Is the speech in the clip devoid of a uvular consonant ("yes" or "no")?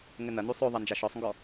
yes